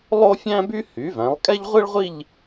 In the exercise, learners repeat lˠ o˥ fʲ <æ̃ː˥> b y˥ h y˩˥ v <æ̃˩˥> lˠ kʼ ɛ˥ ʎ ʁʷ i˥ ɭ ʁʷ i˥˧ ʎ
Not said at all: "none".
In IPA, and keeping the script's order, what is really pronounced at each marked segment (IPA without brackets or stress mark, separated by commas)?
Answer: æ̃˥, æ̃˩˥